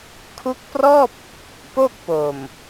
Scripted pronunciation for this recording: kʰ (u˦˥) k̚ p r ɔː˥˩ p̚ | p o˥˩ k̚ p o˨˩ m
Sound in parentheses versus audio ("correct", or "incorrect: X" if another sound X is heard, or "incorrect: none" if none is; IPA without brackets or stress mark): correct